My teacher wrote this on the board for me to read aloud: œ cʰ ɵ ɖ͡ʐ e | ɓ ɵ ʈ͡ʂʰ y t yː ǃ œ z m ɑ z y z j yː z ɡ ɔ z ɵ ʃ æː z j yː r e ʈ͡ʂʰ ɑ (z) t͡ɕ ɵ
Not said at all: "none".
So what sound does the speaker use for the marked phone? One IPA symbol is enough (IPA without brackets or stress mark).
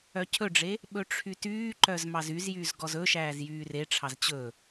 z